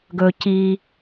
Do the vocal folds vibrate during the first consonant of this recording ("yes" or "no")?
yes